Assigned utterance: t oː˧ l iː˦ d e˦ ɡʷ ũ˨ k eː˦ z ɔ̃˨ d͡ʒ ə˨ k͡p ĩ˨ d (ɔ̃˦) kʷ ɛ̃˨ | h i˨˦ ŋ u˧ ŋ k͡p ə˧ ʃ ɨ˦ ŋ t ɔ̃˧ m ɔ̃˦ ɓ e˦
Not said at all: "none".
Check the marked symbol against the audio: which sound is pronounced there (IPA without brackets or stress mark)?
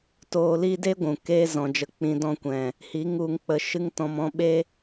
ɔ̃˧